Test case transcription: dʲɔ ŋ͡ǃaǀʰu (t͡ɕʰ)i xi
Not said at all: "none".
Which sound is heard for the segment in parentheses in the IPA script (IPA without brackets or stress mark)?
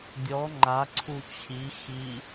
t͡ɕʰ